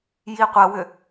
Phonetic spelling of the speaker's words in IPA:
jiqʷɐwʏ

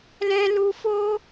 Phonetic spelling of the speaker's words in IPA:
lɛ̃˦lu˦ fo˦

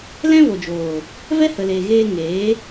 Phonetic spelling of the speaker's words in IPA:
lɛ̃˦vo˨d͡ʒoː˨ | vɛ˦hə˨leː˨ ɣeː˧ŋeː˨˦

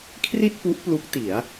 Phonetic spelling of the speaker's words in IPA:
kʰri˥˩t̚pu˦˥ʔ plu˦˥k̚ti˩˦a̯

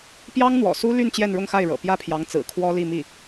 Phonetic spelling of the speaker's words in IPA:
pjɑ˥ŋn̪wɔ̰˨˩su˥ly˥˧n t͡ɕjɛ˥˧nɻʊ˥˧ŋxa˥˩ɪ̯ɻɤ̰˨˩ pjä˥˩pʰjɑ˧˥ŋt͡sɹ̩˨˩ kʰwɔ˥li˥˧mi˥˩

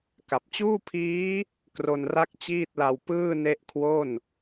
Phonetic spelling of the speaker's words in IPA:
ka˨˩p̚t͡ɕuː˥˩pʰiː˦˥ | kro˧nra˥˩k̚t͡ɕiː˥˩t̚la˧w pɯː˥˩ne˦˥ʔkʰwo˥˩n

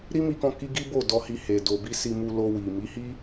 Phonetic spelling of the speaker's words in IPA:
ɾi˦mi˧kɔ̃˧ ki˦ ɡi˦bo˦˨ dɔ˧hi˧ he˨ do˨bi˧ si˧mu˧lo˧ wi˨ mi˨˦hi˦

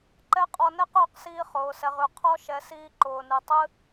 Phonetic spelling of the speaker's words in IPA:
ǃɛ˦qʼɔ˧ nɛ˦qʊː˧qsiː˧χʊː˨ sɛ˨ʁʉ˨ qʰɔ˦ ʃɛ˨˦siː˧ǃʊː˨nɨ˨ tˤɨ˦

